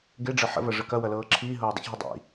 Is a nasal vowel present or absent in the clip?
absent